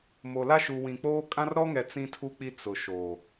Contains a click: no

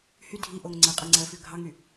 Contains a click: yes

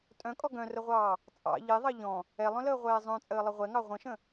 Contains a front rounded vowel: yes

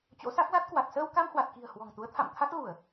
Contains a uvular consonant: no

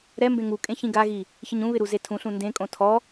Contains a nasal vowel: yes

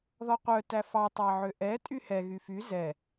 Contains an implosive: no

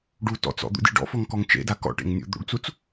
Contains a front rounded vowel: no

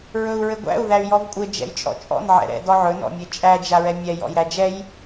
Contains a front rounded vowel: yes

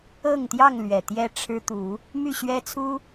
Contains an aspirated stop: yes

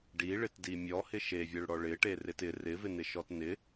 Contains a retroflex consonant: yes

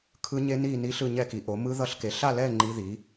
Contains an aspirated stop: yes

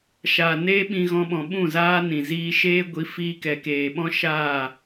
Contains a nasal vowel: yes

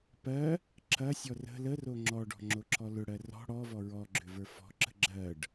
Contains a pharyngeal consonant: no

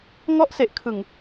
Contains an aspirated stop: yes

